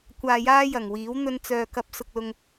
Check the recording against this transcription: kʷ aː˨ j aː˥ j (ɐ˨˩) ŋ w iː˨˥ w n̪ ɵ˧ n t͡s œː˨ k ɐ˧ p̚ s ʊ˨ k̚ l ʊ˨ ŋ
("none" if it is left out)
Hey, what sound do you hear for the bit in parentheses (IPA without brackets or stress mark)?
ɐ˨˩